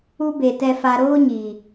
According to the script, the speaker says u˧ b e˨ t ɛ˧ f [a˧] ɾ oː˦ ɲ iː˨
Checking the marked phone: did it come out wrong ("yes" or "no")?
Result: no